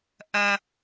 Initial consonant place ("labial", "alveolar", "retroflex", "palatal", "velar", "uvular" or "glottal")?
glottal